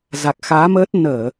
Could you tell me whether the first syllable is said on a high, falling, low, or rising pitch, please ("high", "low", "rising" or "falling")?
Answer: low